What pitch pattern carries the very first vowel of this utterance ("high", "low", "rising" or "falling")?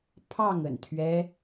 falling